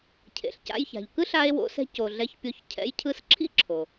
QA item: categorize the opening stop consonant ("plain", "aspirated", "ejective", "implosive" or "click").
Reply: aspirated